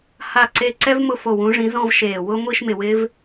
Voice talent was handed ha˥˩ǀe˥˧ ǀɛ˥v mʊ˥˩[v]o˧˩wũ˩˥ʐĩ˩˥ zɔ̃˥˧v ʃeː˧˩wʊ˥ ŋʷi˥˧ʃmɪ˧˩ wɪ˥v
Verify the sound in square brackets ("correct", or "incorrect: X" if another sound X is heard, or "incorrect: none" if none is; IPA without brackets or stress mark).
incorrect: f